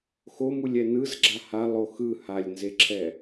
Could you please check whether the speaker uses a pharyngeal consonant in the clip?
no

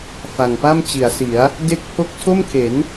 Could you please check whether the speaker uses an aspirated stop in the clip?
yes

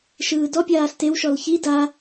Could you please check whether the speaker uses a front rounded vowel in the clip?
no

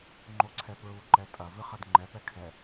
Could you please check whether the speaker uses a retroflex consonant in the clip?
no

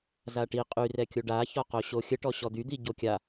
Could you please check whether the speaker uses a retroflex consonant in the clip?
yes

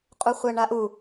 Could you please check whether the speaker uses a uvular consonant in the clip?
yes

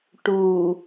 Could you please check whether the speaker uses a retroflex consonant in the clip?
yes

